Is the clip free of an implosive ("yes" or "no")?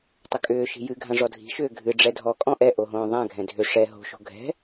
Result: yes